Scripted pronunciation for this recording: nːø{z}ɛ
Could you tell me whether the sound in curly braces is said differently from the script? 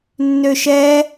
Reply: yes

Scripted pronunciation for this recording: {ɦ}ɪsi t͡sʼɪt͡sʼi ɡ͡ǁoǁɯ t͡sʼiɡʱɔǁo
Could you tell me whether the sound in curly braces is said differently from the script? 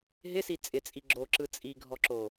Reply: no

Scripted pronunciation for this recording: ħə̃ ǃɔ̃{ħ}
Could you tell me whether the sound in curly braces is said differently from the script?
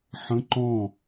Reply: yes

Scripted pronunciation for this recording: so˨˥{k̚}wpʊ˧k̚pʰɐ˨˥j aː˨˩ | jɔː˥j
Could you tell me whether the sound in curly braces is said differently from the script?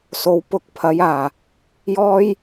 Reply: yes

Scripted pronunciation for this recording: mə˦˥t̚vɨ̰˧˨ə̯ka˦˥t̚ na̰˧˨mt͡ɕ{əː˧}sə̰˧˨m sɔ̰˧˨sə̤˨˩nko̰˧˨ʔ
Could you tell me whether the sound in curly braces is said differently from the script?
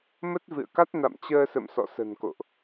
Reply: no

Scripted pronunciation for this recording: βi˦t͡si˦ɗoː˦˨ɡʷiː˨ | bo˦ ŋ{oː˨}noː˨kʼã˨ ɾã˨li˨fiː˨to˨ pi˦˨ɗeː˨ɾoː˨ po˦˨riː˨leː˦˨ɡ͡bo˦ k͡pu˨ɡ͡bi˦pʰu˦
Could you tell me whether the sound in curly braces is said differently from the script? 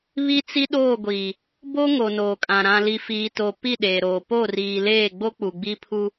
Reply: yes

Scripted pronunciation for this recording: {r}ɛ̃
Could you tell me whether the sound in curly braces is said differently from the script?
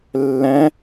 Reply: yes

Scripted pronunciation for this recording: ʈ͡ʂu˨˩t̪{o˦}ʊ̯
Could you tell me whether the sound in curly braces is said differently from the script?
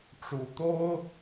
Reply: no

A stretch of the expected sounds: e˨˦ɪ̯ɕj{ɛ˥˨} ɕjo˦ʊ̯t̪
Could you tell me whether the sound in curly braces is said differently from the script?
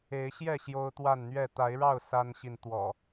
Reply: no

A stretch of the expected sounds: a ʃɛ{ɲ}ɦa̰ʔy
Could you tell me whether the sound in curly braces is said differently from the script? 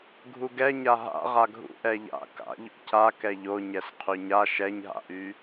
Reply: no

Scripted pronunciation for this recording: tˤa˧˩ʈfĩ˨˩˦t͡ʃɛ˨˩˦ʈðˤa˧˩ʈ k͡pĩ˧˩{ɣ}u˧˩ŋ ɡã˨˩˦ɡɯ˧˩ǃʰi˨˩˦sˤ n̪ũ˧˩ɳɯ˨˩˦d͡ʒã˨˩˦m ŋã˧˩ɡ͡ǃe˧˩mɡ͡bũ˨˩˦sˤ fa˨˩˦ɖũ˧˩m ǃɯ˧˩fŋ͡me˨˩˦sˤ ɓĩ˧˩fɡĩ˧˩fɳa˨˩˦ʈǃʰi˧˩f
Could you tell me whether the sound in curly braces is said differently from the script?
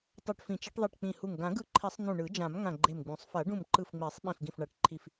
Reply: yes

